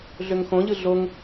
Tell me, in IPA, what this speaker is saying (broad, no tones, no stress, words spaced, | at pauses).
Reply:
ɮøŋxõʎɯ ɮoŋ